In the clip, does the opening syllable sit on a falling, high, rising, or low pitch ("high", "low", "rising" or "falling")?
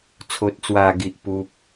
low